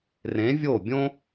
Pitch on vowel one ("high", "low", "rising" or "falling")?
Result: rising